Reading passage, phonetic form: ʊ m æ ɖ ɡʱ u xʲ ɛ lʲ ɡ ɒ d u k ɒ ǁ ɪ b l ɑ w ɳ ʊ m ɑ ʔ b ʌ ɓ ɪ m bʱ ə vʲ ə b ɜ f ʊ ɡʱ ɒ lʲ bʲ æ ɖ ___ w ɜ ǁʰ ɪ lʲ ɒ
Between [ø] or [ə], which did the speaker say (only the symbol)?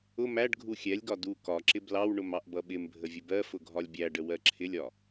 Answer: ə